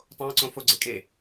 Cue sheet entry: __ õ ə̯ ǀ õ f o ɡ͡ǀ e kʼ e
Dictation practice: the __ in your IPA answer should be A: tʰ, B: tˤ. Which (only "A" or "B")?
B